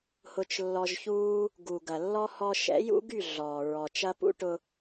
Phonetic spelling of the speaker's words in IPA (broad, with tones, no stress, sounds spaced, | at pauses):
h ʊ˧ t͡ʃ lː ɔ˧ ʒ ç uː˦ | ɡ u˨ ɡ ɐ˨ lː ɔ˦ h ɔ˧ ʃ ɛ̰˨˦ j ṵ˦ ɡ y˦˨ ɮ ɔː˨ ɹ ɔ˨ t͡ʃ ɐ˦ p ṵ˦ ʈ ʊ˧